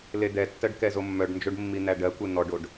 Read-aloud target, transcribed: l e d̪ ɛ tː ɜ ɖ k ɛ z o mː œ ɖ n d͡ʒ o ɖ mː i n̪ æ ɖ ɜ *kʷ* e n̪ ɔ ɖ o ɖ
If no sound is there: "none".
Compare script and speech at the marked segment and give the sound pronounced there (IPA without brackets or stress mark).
kʷ